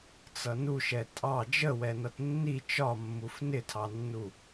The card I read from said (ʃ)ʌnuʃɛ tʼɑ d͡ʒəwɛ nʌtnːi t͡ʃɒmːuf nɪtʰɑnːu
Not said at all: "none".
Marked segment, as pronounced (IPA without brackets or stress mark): t͡s